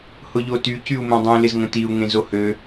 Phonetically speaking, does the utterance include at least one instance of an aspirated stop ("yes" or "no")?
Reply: no